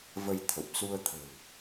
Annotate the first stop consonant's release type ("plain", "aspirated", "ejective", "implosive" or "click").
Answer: aspirated